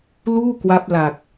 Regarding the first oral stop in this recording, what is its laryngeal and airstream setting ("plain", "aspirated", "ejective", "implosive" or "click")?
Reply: plain